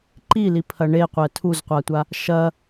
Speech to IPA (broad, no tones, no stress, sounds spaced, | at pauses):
ǃ i l i pʰ ɐ ɳ e qʷ ɛ tʰ u z qʷ a tʷ a | ʃ ɐ